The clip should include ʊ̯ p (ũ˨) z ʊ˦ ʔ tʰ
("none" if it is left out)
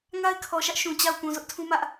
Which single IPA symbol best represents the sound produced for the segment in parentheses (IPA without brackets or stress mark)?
ũ˨